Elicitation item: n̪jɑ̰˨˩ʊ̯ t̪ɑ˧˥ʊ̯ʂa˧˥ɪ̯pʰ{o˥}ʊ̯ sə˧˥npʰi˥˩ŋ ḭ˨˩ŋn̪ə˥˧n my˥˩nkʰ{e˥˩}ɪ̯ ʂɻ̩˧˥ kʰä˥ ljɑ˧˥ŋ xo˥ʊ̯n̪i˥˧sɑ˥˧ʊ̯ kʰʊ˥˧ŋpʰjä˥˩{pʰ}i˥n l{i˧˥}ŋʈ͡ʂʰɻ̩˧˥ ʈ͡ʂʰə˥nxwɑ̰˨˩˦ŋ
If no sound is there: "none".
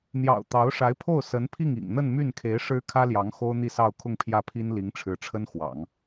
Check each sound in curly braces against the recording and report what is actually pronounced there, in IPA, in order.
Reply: o˥˩, e˧˥, pʰ, i˧˥

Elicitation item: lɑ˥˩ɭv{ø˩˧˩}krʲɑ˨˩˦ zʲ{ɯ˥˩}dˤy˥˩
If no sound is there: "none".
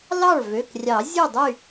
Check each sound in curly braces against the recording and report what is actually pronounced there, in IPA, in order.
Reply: ø˩˧˩, ɯ˥˩

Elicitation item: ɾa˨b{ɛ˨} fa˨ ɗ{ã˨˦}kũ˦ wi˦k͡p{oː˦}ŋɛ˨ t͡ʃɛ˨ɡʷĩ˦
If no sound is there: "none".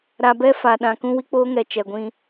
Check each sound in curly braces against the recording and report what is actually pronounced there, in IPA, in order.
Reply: ɛ˦, ã˨, oː˦

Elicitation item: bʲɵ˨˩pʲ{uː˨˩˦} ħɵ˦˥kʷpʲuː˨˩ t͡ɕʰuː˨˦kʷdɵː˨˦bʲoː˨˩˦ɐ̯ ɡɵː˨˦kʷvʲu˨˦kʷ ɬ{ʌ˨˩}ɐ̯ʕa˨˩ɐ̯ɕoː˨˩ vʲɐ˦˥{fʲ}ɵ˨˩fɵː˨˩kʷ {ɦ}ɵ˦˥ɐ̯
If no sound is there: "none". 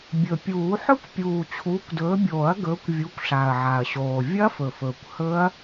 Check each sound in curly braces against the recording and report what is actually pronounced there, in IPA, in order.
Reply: uː˨˩˦, a˨˩, f, h

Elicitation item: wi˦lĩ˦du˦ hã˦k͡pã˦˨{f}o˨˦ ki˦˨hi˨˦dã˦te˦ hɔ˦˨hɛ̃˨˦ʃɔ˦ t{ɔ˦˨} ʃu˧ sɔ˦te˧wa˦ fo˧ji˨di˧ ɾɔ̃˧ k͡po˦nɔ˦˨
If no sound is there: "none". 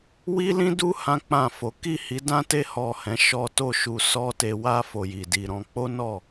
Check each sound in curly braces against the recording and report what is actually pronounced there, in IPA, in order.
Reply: f, o˦˨

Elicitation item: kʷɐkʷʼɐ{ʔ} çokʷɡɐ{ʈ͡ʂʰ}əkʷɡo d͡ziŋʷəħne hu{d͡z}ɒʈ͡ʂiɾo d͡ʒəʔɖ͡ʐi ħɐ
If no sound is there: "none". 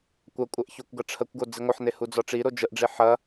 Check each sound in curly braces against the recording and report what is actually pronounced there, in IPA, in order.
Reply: ʔ, ʈ͡ʂʰ, d͡z

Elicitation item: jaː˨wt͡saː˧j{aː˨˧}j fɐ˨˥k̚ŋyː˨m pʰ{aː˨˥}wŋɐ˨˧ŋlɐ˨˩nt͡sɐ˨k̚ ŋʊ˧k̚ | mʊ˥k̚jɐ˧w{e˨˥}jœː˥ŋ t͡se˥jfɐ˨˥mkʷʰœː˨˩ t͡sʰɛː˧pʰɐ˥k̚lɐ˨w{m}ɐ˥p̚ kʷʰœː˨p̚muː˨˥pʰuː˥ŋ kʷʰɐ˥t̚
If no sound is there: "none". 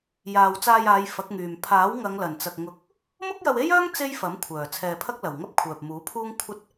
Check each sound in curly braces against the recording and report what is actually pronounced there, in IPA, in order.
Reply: aː˨˧, aː˨˥, e˥, ŋ

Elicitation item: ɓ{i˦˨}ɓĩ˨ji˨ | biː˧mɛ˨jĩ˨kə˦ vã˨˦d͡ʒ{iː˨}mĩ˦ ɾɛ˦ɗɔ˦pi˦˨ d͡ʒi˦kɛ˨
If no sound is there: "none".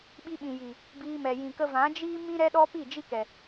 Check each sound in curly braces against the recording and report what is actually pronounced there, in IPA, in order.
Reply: i˧, iː˦

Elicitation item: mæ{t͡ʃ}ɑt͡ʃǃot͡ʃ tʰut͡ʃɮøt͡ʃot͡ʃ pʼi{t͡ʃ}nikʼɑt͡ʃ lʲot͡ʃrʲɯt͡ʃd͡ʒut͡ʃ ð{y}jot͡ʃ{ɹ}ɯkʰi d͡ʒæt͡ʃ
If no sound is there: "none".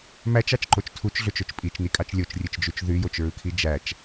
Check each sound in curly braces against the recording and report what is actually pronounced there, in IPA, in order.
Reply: t͡ʃ, t͡ʃ, y, ɹ

